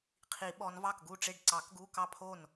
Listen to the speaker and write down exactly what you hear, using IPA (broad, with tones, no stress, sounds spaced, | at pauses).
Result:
qʰ i˨˩˦ ɓ ɔ˨˦ n v ɑ˥˩ k ɡ u˥˩ ʈ͡ʂ e˥˩ ɖ ǀ ɑ˨˩˦ k ɡ u˧˥˧ k ɑ˥˩ pʰ o˥˩ n